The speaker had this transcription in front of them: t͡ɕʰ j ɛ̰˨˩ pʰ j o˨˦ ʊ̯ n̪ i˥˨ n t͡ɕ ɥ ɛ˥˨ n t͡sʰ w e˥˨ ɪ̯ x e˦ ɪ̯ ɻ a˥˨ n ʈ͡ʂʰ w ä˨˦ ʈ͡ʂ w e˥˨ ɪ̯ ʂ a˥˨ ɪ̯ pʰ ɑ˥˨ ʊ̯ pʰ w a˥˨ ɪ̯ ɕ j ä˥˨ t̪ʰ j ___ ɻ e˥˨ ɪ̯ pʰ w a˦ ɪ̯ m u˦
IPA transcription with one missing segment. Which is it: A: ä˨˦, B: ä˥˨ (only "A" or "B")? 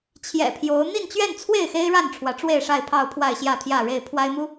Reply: B